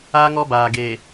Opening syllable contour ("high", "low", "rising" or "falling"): high